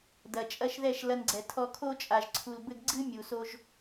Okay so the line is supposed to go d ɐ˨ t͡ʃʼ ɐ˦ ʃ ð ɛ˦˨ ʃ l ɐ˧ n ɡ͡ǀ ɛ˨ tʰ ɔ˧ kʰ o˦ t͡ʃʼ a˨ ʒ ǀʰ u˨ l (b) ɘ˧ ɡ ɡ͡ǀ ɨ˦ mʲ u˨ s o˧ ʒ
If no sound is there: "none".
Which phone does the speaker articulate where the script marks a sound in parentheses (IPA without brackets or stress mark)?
b